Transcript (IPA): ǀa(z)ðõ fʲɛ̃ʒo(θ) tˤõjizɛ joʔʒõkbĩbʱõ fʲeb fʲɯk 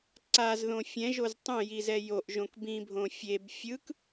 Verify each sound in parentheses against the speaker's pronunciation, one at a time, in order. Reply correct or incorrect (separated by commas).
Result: correct, incorrect